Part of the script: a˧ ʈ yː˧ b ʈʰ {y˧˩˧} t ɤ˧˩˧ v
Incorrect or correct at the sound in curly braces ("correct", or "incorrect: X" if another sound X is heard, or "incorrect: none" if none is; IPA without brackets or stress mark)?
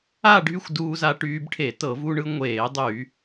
incorrect: e˧˩˧